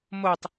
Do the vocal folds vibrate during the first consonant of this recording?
yes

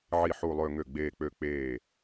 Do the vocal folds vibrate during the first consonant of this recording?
yes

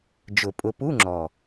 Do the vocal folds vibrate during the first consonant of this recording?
yes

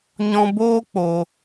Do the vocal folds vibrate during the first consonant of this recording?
yes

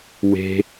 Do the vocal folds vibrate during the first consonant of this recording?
yes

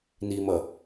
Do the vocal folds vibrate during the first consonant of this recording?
yes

